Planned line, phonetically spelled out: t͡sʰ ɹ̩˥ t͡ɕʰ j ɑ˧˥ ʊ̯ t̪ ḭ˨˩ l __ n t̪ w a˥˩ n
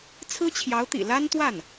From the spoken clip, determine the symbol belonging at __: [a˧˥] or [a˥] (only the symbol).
a˥